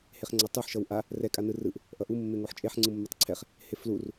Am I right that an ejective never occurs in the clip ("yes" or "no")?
no